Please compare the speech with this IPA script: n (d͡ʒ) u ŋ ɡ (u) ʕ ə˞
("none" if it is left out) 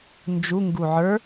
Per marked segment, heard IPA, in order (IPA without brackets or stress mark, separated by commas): d͡ʒ, u